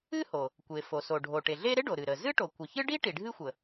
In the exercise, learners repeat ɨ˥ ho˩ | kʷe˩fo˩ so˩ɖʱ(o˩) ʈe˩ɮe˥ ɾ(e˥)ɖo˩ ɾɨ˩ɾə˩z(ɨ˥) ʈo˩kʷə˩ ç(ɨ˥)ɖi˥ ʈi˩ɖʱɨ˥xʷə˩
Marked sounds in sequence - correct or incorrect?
correct, correct, correct, correct

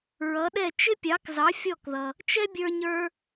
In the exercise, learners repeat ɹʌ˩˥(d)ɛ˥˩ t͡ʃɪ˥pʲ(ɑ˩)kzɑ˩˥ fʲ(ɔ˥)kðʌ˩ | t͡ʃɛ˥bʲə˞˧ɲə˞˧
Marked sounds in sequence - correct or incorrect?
incorrect: ɗ, incorrect: ɑ˩˥, incorrect: ɔ˥˩

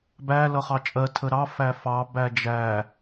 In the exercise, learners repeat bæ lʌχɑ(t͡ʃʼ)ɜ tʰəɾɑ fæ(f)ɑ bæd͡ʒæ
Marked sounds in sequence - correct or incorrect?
correct, correct

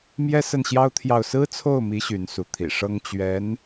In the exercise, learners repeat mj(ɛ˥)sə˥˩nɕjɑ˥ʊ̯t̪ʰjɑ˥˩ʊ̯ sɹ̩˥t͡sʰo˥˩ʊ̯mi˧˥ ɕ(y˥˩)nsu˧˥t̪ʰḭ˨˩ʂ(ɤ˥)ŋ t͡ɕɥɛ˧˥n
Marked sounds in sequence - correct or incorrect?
correct, incorrect: y˧˥, correct

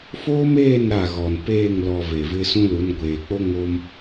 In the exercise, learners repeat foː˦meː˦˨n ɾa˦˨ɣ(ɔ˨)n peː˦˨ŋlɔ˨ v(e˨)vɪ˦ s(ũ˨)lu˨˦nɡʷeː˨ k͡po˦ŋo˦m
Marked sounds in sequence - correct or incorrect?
correct, correct, incorrect: ũ˦

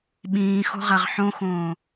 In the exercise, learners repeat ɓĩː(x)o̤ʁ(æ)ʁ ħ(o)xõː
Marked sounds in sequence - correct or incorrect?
correct, correct, incorrect: õ

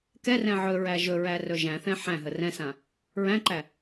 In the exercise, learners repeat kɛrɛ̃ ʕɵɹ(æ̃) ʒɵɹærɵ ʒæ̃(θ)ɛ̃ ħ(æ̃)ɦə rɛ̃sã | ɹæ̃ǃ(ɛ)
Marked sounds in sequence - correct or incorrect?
incorrect: æ, correct, correct, incorrect: æ

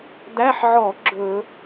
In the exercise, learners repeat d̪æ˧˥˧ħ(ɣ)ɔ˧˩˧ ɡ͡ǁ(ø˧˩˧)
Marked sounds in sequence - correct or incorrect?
incorrect: ʕ, incorrect: ɵ˧˩˧

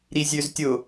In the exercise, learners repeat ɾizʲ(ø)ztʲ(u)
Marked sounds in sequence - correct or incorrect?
correct, incorrect: ʊ

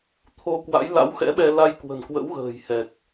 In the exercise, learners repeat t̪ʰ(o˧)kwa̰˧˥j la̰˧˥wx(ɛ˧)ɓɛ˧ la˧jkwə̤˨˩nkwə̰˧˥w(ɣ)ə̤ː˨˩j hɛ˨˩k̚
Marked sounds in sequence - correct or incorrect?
correct, incorrect: ɛ̰˧˥, correct

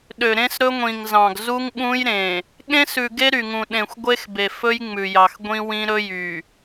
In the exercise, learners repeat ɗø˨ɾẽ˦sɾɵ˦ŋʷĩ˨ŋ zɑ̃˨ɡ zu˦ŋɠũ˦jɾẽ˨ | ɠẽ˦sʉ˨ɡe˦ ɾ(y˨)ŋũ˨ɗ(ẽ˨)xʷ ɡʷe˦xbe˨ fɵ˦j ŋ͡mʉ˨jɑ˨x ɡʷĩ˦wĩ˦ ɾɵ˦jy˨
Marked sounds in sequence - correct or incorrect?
correct, correct

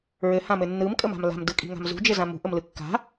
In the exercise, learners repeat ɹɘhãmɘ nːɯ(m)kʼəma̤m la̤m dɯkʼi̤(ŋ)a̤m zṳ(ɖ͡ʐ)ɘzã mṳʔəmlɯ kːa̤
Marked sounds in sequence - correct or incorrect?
correct, correct, incorrect: d͡ʒ

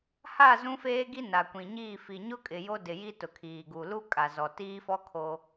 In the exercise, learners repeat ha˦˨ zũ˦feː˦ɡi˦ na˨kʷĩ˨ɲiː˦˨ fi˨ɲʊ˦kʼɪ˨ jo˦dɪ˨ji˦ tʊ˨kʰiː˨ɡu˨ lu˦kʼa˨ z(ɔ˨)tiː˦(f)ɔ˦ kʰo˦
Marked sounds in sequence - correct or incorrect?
correct, correct

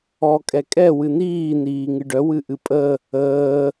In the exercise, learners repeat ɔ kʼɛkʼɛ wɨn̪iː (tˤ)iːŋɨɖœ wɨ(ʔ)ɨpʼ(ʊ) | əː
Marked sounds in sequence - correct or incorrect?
incorrect: n̪, correct, incorrect: ə

